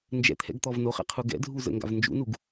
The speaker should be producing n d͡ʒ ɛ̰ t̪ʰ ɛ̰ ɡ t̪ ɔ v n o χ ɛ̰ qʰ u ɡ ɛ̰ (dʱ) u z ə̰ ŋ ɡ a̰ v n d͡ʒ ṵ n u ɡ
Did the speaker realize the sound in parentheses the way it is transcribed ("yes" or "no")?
yes